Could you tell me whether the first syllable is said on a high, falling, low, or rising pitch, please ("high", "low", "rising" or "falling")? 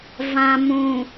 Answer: low